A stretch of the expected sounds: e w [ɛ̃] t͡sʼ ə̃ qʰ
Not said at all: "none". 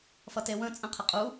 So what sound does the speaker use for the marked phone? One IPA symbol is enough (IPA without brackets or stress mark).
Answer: ə̃